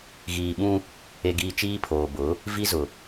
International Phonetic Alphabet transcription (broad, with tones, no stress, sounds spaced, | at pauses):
ɣ iː˨ ɓ ũ˦ | e˨ ɡ iː˨ t͡ʃ iː˦ pʰ oː˨ b ʊ˨˦ | v i˦ z ʊ˨